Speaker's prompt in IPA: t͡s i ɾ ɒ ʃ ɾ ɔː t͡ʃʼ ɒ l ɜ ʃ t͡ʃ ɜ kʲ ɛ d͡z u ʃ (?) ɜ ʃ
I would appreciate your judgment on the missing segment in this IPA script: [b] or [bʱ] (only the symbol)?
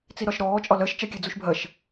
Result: bʱ